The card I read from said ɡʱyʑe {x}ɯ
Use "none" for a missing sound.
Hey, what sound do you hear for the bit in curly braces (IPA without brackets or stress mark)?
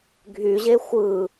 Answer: xʷ